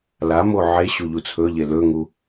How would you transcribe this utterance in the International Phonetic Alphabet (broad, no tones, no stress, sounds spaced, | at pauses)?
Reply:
l a m o ʕ e ɕ u ʎ u t͡sʰ ɵ ʎ e l ɵ ŋ u